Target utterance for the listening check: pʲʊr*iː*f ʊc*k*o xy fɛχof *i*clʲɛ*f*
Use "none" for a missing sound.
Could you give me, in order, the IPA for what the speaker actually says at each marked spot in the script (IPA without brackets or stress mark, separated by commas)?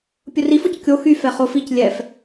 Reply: i, kʲ, i, f